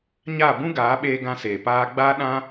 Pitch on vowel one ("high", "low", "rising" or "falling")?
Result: falling